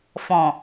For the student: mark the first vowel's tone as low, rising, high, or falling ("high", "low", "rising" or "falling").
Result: low